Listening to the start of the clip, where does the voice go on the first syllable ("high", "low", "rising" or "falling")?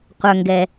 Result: low